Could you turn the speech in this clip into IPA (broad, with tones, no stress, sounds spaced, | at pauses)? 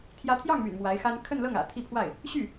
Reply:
t̪ʰ j ä˧˥ t̪ʰ j ɑ˥˩ ŋ m y̰˨˩ n m w a˧˥ ɪ̯ x a˥ n kʰ ə˥˧ n l ɤ˥˩ ŋ ä̰˨˩ t̪ʰ i˥˧ pʰ w a˥˩ ɪ̯ | ɕ y˥˩